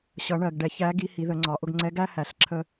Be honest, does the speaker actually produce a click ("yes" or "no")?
yes